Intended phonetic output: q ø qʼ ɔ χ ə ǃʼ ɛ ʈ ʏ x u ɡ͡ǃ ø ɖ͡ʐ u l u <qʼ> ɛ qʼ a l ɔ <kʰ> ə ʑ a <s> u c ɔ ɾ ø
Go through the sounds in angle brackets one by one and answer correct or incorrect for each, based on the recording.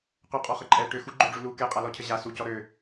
incorrect: k, incorrect: cʰ, correct

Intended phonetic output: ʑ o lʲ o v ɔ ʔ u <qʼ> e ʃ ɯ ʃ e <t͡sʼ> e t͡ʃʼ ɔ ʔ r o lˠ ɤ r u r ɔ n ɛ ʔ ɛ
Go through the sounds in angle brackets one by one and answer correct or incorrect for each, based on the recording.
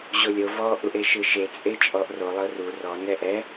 incorrect: ʔ, correct

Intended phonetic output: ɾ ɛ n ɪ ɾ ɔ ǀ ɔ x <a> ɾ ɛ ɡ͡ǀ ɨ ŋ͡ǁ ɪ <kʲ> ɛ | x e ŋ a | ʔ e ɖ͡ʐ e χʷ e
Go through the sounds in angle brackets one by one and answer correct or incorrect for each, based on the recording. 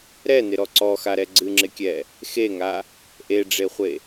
correct, correct

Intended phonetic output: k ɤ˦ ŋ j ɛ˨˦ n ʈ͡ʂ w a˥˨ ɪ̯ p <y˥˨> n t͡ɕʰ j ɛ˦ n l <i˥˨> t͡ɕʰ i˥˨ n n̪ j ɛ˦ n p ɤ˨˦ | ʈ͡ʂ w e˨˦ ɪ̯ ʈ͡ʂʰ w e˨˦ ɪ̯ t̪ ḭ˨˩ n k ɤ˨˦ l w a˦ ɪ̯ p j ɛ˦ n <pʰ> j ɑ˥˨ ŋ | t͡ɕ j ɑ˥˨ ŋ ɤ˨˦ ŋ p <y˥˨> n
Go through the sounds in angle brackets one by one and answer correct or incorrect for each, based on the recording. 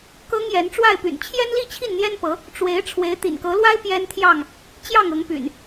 incorrect: y̰˨˩, correct, incorrect: t̪ʰ, incorrect: y̰˨˩

